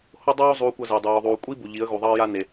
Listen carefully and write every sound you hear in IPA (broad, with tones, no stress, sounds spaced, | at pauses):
h o˦ dˤ oː˦ zˤ uː˧ kʷ ʌ˧ z e˨ ə̯ dˤ oː˨ ðˤ uː˨ kʷʼ i˦ b u˨ ʎ i˨˦ ə̯ ɣ u˨ ðˤ ʌː˦ j a˦ n e˨